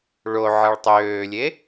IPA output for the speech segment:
ɭo ʕʌɭtˤøːlʲe

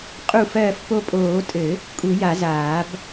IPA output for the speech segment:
qʼu˧˩fɜː˧˩f po˧˩pʼoː˨˩˦tʼɘ˨˩˦ | kʼu˨˩˦ja˨˩˦zaː˨˩˦b

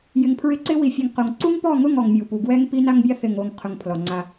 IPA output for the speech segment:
jɪ˨ŋpʰɹɪ˦ǀɪ˦ wi˨fʲe˨ŋqo˨ŋ ǀu˦ŋpɔ˦˨ŋʊ˦˨ŋ ɔ˨ŋmʲu˨pu˨ ɡwɛ˦ŋpi˦na˦ŋbʲa˦ θɪ˨ŋo˨ŋ qʰʊ˨ŋ pʰlɔ˨ŋ͡ǀa˦

